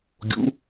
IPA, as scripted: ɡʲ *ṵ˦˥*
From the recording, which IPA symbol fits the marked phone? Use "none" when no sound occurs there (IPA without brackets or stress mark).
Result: ṵ˦˥